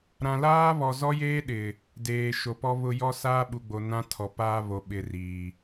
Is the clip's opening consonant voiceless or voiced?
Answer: voiced